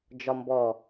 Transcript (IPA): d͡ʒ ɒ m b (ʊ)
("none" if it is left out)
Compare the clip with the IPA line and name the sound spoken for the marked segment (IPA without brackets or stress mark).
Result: ɔ